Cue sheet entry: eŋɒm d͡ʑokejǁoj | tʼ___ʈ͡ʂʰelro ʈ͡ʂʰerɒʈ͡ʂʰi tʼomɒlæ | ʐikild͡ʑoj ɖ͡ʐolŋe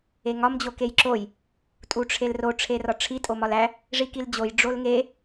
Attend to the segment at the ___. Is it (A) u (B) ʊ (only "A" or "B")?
A